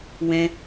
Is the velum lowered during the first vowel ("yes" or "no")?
yes